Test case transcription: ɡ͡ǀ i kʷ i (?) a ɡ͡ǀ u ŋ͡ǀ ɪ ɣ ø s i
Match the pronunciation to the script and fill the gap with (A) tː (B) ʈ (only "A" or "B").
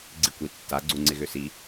A